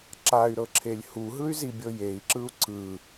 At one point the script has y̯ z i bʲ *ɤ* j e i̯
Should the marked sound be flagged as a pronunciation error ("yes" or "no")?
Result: no